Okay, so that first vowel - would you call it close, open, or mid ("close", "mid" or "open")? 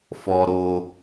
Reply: mid